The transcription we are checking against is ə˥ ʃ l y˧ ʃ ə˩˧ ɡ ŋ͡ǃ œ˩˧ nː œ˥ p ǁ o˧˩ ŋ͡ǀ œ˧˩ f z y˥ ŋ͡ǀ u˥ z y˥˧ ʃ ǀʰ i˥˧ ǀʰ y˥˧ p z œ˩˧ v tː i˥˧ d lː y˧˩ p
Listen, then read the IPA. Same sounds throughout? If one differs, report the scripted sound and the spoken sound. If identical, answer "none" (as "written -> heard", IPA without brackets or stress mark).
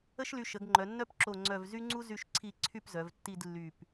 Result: f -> v